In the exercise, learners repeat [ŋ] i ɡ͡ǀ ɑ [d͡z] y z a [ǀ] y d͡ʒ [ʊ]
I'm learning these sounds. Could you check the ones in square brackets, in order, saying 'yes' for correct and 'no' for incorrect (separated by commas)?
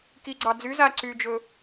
no, yes, yes, no